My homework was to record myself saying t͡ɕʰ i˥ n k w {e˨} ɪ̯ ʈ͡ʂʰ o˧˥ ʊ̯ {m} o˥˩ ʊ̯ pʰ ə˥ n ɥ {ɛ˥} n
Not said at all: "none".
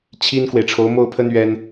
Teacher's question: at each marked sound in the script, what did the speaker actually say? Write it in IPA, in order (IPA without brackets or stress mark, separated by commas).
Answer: e˨, m, ɛ˥